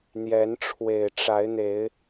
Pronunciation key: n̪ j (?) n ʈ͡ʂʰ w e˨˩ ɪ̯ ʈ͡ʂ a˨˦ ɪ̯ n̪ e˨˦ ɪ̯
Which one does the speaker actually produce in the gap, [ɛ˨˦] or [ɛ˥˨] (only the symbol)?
ɛ˨˦